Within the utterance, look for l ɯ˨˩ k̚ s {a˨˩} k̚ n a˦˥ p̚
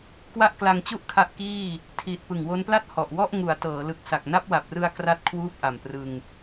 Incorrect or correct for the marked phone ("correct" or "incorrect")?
correct